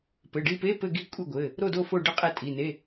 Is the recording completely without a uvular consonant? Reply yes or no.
no